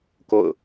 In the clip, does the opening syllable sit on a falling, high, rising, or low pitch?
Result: falling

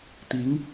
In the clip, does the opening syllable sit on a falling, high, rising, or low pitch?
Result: rising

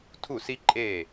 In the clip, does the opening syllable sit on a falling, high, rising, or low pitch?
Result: falling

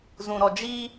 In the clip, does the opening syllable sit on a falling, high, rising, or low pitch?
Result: low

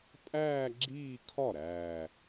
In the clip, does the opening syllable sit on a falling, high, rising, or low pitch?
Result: falling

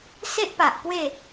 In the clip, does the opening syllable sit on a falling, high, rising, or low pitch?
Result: high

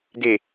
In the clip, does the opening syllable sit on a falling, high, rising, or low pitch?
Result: low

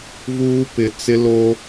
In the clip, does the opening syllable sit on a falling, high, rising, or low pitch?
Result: high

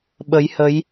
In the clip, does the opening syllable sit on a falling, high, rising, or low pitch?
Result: rising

